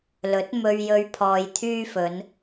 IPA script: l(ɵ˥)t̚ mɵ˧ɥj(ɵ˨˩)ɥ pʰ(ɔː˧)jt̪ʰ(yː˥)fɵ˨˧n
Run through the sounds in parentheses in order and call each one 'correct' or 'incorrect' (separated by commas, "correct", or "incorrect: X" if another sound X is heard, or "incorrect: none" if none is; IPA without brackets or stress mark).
incorrect: ɵ˨˥, incorrect: ɵ˧, correct, correct